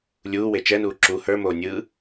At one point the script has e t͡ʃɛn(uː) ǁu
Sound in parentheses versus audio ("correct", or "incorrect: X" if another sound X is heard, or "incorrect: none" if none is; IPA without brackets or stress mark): correct